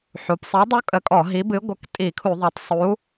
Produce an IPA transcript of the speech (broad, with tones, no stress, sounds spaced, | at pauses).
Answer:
ħ u˩˧ p sˤ i˨˥ dˤ u˦˥ kʼ ə˨˥ kʼ ɔ˧˩˧ ɦ i˨˥ b ɨ˨˥ ɡʷ ə˨˥ k tʼ i˧˩˧ kʰ u˧˩˧ ðˤ o˩˧ tˤ sˤ u˨˥